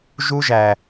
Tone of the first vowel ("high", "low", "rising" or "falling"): high